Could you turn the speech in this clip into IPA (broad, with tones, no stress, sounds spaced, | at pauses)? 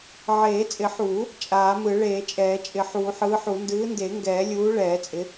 ʕ eː˨˩˦ t͡sʼ ɪ˨˩˦ ħ uː˨˩˦ | t͡ʃʼ aː˨˩˦ m ɯ˨˩˦ ɭ eː˨˩˦ t͡ʃʼ ɛː˨˩˦ t͡ʃʼ ɪ˨˩˦ ħ uː˨˩˦ ħ ɯː˨˥ ħ u˨˩˦ n d ɯː˨˥ n d e˨˩˦ ŋ ɡ ɛː˨˩˦ lʲ uː˨˥ ɭ ɛː˨˩˦ t͡sʼ ɪ˨˥